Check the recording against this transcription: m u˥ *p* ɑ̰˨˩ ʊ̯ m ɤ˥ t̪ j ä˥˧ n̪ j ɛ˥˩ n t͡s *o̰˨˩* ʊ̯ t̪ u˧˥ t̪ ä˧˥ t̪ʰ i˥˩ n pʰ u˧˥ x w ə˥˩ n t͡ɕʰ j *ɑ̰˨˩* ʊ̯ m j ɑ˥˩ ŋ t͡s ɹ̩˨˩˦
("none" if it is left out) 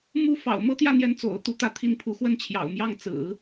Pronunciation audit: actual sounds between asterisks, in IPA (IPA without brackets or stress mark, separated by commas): f, o̰˨˩, ɑ̰˨˩